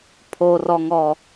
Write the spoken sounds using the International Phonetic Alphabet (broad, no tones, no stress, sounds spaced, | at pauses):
pʰ o r ɔ ŋ ɔ